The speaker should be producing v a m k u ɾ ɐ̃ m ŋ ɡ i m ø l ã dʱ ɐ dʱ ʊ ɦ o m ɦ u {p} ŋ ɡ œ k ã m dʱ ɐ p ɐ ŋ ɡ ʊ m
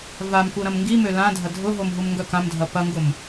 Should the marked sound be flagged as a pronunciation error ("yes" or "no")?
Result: yes